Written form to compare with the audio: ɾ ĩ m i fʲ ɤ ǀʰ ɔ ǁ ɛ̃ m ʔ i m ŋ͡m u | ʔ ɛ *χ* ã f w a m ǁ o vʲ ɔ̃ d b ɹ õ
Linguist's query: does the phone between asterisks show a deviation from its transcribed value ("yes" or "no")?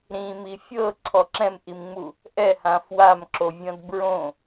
yes